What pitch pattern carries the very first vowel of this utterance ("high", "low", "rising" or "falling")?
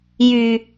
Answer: low